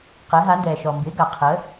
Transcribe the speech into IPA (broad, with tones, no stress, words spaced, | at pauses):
qɛ˩˥ɦa˩˥ndɛː˩ ʃɔ˩mbɪ˩˥ ɡa˩qʰəː˩˥